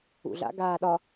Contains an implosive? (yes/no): yes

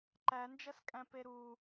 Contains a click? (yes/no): yes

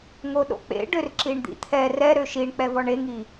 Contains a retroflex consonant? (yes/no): yes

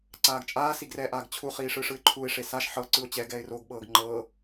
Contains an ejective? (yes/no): yes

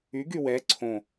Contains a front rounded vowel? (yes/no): yes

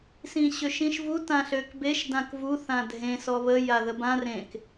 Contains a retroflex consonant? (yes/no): no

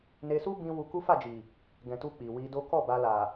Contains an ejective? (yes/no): no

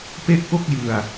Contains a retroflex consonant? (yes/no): no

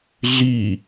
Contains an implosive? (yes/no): no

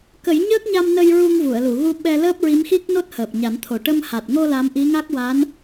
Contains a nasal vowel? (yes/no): no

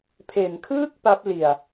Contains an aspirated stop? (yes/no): yes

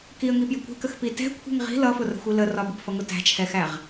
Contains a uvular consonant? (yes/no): yes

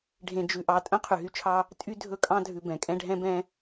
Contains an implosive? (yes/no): no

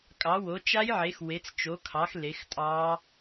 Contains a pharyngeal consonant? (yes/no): yes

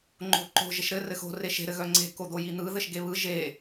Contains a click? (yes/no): yes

